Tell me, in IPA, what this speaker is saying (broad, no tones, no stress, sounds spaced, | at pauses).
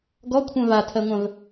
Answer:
ɡ ɔ kʷʰ œ̃ v a tʰ ɜ ŋʷ œ̃ v